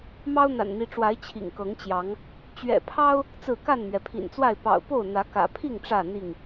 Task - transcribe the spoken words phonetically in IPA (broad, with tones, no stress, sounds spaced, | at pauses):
m ɑ˦ ʊ̯ n̪ a̰˨˩ n n̪ i˨˦ ʈ͡ʂ w a˨˦ ɪ̯ t͡ɕʰ ḭ˨˩ ŋ k ɤ˨˦ ŋ t͡ɕ j ɑ˨˦ ŋ | t͡ɕ ɥ ɛ̰˨˩ pʰ ɑ˦ ʊ̯ | t͡s ɹ̩˥˨ k a˥˨ n m ɥ ɛ˩ pʰ ḭ˨˩ n t͡s w a˥˨ ɪ̯ p ɑ̰˨˩ ʊ̯ p o˥˨ ʊ̯ n̪ ä˨˦ k ä̰˨˩ pʰ i˥˨ ŋ ʈ͡ʂ ä˥˨ n̪ i˥˨ ŋ